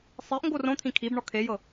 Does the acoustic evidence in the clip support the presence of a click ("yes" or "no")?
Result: no